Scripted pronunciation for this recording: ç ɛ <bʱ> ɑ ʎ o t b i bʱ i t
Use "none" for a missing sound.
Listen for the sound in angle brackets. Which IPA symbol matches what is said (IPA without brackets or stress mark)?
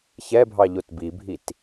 bʱ